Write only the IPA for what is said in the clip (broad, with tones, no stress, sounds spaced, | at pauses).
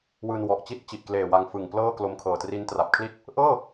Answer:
w ɯː˧ n w ɔ˨˩ ʔ t͡ɕ i˥˩ t̚ t͡ɕ i˨˩ ʔ k l eː˨˩ w a˧ ŋ f ɯ˨˩ ŋ p l ɤː˥˩ k l o˧ m kʰ ɤː˨˩ t r i˦˥ n t r a˨˩ p̚ kʰ l i˥˩ t̚ | ʔ ɤː˥˩